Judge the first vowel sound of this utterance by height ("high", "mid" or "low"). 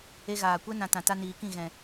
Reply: mid